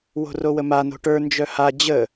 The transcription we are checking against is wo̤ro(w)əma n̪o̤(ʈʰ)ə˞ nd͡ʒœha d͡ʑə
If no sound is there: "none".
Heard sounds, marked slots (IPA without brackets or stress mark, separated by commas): w, ʈ